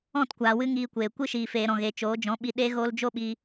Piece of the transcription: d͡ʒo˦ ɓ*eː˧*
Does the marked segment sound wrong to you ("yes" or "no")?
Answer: yes